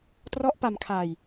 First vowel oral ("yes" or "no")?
yes